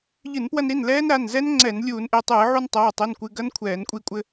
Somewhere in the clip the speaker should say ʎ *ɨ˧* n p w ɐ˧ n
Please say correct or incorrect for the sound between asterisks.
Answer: incorrect